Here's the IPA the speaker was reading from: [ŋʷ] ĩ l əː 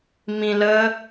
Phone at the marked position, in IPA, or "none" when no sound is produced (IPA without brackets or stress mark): m